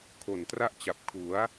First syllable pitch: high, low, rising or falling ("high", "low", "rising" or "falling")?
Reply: low